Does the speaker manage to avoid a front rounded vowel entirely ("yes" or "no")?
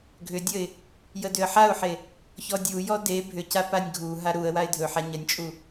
no